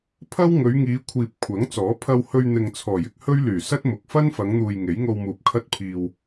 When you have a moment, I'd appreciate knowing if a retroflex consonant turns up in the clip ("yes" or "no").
no